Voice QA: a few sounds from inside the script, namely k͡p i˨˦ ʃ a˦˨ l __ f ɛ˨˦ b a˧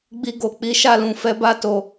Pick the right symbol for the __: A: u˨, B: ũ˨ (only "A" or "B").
B